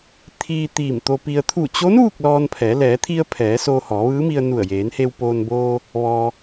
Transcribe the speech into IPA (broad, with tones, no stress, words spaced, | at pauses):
t̪ʰiː˧ t̪iː˧˩mt̪o˧pi˧ə̯ t̪ʰu˧˩t͡ɕo˧˥n ʋu˥˨k̚lɔː˧npʰɛː˩˧ lɛː˩˧t̪ʰi˧ə̯ pʰɛː˩˧ soː˧hɔː˩˧ʋɯː˧˥mi˧ə̯ nu˧˩ə̯jeː˩˧nhe˧wpoː˧n boː˧ | ʋɔː˧